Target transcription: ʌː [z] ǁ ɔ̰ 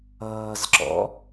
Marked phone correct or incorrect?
correct